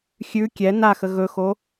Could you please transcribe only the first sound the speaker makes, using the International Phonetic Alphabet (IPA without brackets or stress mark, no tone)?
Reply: xʲ